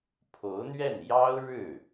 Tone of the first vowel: rising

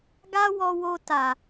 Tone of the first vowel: high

